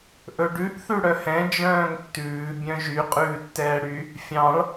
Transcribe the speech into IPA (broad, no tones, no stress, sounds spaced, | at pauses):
ʔ ɵ ɖ ʉ ʔ θ ʉ ɽ œ h ɛ̃ d͡ʒ œ̃ː ŋ tː ʉː bʲ œ̃ ʒ y qʼ ʉː tː ɛː ɽ y | fʲ ɑ̃ ɭ